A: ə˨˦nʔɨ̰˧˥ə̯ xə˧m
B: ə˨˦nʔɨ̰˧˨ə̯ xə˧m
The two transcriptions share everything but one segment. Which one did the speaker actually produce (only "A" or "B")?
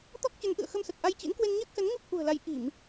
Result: B